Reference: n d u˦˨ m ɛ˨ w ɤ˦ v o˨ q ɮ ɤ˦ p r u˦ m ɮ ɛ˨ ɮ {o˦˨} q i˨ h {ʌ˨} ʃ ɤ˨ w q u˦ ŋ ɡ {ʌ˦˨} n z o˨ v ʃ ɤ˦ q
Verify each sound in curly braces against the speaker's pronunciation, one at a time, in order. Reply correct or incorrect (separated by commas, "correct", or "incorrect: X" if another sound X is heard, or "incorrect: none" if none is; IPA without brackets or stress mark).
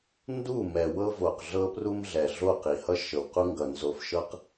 correct, incorrect: ʌ˦, incorrect: ʌ˨